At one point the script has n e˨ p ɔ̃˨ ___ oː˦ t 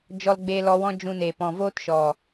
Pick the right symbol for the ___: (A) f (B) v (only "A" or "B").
B